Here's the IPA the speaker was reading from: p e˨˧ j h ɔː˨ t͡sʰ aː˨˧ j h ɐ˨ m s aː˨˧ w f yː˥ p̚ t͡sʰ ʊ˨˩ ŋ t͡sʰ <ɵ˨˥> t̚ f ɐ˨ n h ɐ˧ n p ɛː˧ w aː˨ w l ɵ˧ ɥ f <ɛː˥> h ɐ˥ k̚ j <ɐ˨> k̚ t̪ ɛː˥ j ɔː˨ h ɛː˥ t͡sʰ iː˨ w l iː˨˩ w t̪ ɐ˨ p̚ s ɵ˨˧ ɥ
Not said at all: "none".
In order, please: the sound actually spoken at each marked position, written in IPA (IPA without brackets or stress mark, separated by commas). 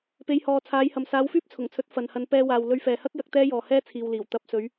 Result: ɵ˨˥, ɛː˨, ɐ˨˥